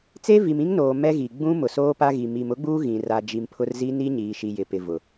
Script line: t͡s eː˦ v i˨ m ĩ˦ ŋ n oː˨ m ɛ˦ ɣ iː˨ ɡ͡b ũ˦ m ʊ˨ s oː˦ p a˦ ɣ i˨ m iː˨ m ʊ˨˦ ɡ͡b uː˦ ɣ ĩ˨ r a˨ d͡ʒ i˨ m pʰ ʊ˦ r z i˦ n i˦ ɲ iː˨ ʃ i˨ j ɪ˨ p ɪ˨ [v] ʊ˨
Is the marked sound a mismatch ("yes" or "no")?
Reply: no